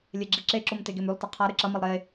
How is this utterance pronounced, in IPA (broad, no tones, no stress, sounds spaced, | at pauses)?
lʲ e ɡ͡ǁ i ǁ e ǁ o m t e ɡ e m ʉ lˠ t ɐ qʰ a ɾ ɨ ǁ ɐ m ɐ lˠ ɾ e